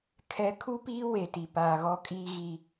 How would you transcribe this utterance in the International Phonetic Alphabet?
kʰɛ˨ kʰu˦ piː˦we˨ti˨paː˨ ɣɔ˦kʼiː˦ ɣi˦

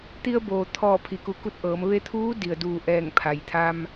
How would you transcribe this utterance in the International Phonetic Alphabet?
t̪i˧ə̯boː˩t̪ʰɔː˧˩ pʰi˩ku˩˧ku˧˩t̚ ʔɤː˩˧m ʋe˧t̪ʰuː˧˥ di˩ə̯duː˧˩ʔɛː˧˩ŋ pʰa˩jt̪ʰa˧m

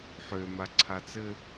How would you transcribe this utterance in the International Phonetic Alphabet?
ħøma ǀʰat͡sɘ

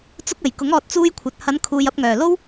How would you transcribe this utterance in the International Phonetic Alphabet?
t͡sʊ˧k̚ ɐ˨˩jkʊ˨˥ŋ ɔː˧t̚t͡suː˥jkʷʰɐ˨t̚ hɐ˨˧n kʰuː˨j ɐ˧p̚ŋœː˨˩lo˥w

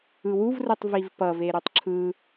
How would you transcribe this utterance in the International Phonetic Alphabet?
ɯwuvrɯtˤ vivpʌve ɾutˤǁʰɯ

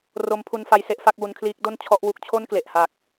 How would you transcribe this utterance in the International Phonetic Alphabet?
ro˦˥mpʰu˧nfa˧j se˦˥ʔfa˦˥k̚wu˧nkʰliː˦˥k̚ do˥˩n t͡ɕʰɔ˦˥ʔwu˦˥k̚ t͡ɕʰo˥˩nkle˨˩ʔha˨˩k̚

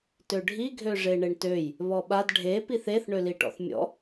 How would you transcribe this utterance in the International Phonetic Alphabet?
tøɖʱi ɡʱøʐeɳeɳtøj | βɔɓad ɖʱe piθeθ ɳøliʈɔ̰θmʲɔ̰

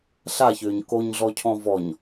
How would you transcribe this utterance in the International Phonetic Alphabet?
ɬaçʏːɲ koɲɮɔcʰɔ̃ vɔɲ

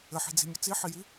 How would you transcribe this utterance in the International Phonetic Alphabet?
ɘħi̤d͡zi̤mʲə t͡siħiji

